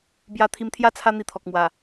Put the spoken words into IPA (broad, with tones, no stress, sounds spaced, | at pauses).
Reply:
b j a˧ t̪ʰ i˧ m t̪ʰ j a˥˧ t͡sʰ a˦ n̪ i˧ t̪ʰ ɔ˨ k̚ m w a˨˩